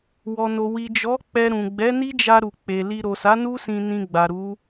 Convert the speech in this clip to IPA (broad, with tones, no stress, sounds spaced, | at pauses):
w ɔ˨ n o˨ w i˨ d͡ʒ ɔ˨˦ k͡p ɛ˧ ɾ ũ˨ ɡ͡b ɛ˨˦ n i˦ d͡ʒ a˧ ɾ u˨ k͡p e˨ l i˧ ɾ o˨ s a˨˦ n u˦ s ĩ˧ n ĩ˧ ɡ͡b a˨ ɾ u˨˦